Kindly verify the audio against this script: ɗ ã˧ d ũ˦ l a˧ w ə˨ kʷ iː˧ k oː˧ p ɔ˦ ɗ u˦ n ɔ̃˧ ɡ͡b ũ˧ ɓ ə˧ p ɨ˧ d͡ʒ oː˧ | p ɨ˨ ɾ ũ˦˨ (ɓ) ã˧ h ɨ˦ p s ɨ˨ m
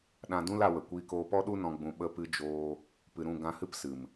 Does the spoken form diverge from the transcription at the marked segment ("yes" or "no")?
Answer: yes